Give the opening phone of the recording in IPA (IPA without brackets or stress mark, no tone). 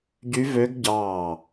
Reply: ɟ